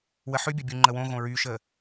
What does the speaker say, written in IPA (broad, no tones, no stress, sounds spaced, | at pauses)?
w ə ħ ʉ bʲ ə bʲ u ŋ͡ǃ ə w õ ɣ õ ɹ y ʃ ə